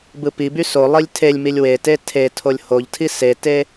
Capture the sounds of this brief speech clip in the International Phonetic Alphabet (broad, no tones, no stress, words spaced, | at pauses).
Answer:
bɯpiby solˠilʲ tʰelʲmilʲ wete tʰetʰolʲ hoʎtʰi sete